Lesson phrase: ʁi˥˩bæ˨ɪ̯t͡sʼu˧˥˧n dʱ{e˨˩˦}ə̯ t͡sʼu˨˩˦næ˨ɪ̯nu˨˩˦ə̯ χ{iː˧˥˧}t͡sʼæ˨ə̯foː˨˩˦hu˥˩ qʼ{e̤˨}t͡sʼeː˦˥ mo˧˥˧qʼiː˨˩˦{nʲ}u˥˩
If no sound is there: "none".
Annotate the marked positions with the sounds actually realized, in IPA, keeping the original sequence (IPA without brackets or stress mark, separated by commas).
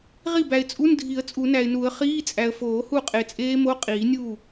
i˨˩˦, iː˧˥˧, e˨, nʲ